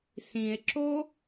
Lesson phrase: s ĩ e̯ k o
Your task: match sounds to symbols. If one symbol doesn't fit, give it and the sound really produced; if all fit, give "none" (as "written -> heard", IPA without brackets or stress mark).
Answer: k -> ǁ